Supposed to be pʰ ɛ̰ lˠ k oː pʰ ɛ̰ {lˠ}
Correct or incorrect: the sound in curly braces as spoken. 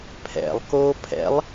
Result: correct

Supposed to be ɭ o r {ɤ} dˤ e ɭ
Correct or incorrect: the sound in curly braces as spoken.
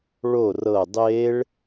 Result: correct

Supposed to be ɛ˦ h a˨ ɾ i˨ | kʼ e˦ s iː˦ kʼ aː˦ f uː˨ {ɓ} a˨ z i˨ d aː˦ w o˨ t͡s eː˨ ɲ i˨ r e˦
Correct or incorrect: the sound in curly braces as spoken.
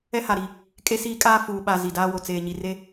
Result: correct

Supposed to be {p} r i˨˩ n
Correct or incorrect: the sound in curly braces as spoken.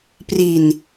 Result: correct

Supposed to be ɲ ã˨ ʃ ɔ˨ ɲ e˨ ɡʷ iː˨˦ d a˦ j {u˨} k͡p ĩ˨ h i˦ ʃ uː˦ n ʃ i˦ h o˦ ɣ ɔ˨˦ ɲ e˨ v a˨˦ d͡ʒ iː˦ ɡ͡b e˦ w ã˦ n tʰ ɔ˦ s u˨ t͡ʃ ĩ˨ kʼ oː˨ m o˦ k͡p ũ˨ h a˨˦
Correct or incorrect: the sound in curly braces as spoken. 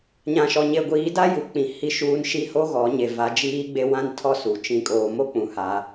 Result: correct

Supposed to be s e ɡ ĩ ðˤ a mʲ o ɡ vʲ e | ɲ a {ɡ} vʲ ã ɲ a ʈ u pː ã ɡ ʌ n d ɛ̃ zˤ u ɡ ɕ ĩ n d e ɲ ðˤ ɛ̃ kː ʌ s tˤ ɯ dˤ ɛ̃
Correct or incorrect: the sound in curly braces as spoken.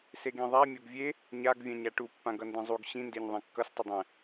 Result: correct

